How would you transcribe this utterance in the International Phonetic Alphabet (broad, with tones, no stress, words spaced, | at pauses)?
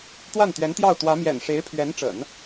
t̪wa˥˩nt̪ɥɛ˧˥nt̪jɑ˥˩ʊ̯t̪wä˧˥ mjɛ̰˨˩nʂe˧˥ɪ̯pʰɥɛ˧˥nʈ͡ʂə̰˨˩˦n